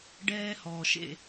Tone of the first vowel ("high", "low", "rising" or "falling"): high